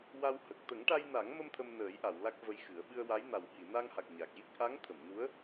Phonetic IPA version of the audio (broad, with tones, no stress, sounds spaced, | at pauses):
w a˧ w h ə˨˩ k̚ t̪ ə˨˩˦ ŋ ʈ a˧ j n a˨˩˦ ŋ m ə˧ m t̪ʰ ə˧ m n əː˨˩˦ j ʔ a˨˩˨ w l a˦˥ k̚ v ə˧ j x ɨ˨˩˦ ə̯ ɓ ɨ˧ ə̯ w a˧˥ j n a˨˩ w h i˨˩˨ n a˧ ŋ h a˨˩ k̚ ɲ a˨˩ k̚ j i˦˥ k̚ ʔ a˧˥ ŋ t̪ʰ ə˨˩˨ m n u˧˥ ə̯